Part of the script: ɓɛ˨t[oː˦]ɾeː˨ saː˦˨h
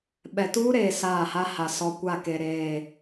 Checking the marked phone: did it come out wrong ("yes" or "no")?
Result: yes